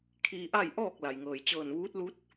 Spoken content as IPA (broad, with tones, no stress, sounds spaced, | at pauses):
kʰ iː˧ ʔ a˥˨ j ʔ ɔː˥˨ k̚ l a˩ j ŋ ɤː˩ j t͡ɕ ɤː˧˩ n ʋ uː˧˥ t̚ l u˧˥ t̚